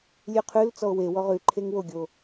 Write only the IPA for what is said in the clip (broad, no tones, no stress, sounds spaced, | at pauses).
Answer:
lʲ ʉ qʰ ʉ l t͡s ɔ o̯ w e w ɔ ʁ ʉ ǃʰ e ŋ w o ɡʲ o